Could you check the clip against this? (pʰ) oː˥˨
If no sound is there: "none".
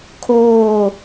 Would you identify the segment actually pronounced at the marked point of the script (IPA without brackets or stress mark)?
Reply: kʰ